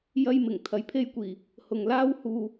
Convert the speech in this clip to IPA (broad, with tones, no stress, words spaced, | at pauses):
jɐ˥jmɪ˨˩ŋ t̪ʰɐ˨jpʰe˥jkʷiː˨˩ | hʊ˨ŋlaː˥w huː˧